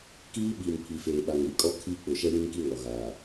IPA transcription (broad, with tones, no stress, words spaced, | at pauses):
kiː˦ɓiː˨m pʰi˨feː˨ɓa˨ŋɾi˨˦ kʼɔ˦ kʰiː˦k͡pʊ˨ ʃɛ˦jĩ˦ŋki˦ ŋɔ˨ɣaː˨